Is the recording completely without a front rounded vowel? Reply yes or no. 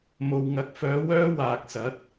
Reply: no